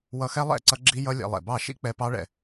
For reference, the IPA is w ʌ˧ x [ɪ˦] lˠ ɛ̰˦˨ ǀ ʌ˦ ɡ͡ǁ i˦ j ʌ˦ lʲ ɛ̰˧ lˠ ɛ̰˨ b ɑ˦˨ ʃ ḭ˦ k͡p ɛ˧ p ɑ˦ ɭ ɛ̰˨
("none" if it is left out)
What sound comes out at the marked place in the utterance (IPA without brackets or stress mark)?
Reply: ɛ˦